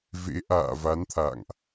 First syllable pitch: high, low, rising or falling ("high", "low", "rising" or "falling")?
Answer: rising